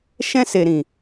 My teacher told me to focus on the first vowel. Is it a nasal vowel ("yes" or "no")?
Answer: yes